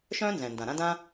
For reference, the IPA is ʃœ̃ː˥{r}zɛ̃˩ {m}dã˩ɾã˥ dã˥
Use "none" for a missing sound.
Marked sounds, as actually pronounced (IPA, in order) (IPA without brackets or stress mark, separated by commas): n, n